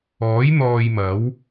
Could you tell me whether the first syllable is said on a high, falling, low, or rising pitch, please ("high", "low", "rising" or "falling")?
rising